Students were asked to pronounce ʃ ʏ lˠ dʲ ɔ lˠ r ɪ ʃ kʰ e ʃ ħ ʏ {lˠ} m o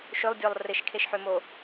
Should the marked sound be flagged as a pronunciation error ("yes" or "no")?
yes